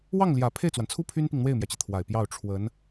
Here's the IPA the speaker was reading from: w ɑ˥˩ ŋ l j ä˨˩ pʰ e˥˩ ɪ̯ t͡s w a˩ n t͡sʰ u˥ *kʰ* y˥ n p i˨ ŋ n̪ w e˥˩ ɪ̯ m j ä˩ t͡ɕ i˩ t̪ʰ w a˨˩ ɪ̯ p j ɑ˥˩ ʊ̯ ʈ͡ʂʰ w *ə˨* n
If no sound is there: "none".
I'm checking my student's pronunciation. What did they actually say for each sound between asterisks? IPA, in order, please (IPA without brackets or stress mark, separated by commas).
pʰ, ə˧˥